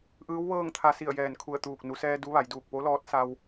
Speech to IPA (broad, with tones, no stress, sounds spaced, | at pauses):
ʔ ɯː˧˥ w ʋ ɤː˥˨ ŋ t̪ʰ a˧ s i˧˩ ə̯ j ɛː˧˩ n kʰ u˧˩ ə̯ t̪ uː˧˩ k̚ n u˩˧ s ɛː˧ d u˧˥ ʋ a˩˧ j d uː˧˩ k̚ p o˧˥ l ɔː˧˥ t̚ s a˧ w